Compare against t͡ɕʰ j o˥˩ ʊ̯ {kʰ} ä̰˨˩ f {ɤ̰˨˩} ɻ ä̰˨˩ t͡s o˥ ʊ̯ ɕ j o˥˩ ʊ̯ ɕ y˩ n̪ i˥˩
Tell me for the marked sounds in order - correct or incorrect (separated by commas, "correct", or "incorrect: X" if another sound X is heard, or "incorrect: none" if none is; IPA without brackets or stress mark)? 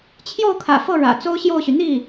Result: correct, incorrect: ɤ˥˩